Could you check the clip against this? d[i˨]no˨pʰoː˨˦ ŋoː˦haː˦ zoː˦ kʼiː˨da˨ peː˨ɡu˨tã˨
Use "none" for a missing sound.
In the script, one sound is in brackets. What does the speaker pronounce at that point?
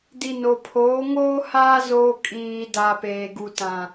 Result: i˨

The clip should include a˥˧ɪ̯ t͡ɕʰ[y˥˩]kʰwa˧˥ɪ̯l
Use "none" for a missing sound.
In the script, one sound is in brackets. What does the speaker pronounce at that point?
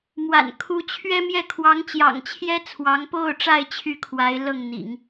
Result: y˥˩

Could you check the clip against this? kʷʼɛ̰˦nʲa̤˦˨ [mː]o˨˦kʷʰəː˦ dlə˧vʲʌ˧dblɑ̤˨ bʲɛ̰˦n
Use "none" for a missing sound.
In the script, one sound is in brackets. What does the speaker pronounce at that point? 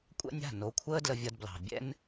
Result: n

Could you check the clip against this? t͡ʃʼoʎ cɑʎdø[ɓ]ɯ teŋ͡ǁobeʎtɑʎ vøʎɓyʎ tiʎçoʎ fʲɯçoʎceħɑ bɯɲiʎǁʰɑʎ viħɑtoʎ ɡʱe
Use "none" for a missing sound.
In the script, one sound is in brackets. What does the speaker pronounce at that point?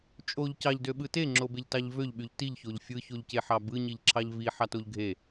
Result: ɓ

